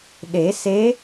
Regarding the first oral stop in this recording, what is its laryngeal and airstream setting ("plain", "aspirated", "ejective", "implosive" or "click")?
implosive